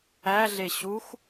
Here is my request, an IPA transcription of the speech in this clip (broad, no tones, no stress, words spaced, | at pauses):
æɮe ɕux